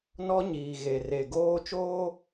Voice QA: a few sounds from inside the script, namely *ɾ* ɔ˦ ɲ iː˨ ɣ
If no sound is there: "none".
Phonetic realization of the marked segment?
n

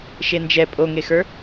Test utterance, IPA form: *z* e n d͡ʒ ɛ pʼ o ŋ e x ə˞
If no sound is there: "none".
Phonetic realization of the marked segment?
ʃ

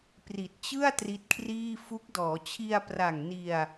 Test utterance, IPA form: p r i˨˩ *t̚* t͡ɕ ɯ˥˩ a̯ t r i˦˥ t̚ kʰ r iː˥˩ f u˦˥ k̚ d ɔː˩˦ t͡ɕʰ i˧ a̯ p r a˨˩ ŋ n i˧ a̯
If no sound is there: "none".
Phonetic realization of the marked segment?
t̚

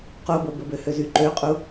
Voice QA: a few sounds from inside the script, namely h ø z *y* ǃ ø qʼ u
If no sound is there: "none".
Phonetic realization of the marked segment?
y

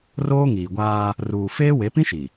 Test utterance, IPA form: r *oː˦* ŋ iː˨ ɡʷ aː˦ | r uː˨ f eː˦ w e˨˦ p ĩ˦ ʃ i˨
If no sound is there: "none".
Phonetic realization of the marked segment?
oː˦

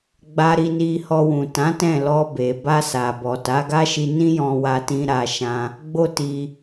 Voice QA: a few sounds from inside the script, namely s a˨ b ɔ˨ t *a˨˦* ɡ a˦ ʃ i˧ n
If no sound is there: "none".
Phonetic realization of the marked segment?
a˨˦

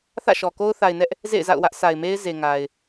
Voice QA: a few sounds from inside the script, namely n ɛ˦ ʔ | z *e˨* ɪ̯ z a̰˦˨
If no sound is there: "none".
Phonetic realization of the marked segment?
ḛ˦˨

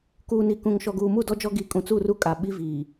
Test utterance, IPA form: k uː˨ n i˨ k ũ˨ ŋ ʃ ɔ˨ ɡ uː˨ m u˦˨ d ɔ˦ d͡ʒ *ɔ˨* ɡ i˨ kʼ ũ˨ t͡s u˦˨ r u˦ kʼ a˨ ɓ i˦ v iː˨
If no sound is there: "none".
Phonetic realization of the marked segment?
ɔ˦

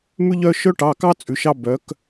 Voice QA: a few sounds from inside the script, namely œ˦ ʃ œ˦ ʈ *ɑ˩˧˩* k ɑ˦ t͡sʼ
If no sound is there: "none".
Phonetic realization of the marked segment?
ɑ˩˧˩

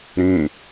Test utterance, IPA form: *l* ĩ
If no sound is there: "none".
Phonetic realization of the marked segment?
ɾ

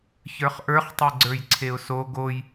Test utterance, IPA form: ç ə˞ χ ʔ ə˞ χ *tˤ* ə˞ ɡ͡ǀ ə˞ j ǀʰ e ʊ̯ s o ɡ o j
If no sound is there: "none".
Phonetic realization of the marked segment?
tˤ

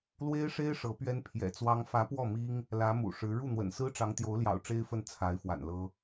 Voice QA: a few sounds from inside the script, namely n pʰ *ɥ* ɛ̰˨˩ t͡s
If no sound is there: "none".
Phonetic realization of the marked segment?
j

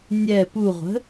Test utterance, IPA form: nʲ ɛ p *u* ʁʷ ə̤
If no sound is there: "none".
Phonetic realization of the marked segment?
u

